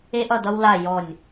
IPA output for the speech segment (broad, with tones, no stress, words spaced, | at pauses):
e˦ʔʌ˦˨dʌ˦wla˦˨ jɔ˦˨nʲ